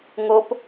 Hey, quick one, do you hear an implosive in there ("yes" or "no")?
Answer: no